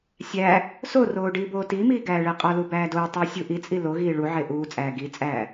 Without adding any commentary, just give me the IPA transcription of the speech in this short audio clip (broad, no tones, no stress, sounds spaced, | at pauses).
sʲ æ | s o r oː ɖ iː b oː t iː m iː ɡ æː ɭ e qʼ ɒ l u b æː d oː tˤ uː sʲ u ʔ i t͡sʼ i l o ɣ iː ɭ u ʕ e ʔ uː t͡sʼ æː ɡ i t͡sʼ æː